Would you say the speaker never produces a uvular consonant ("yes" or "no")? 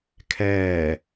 yes